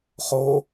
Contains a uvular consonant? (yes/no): yes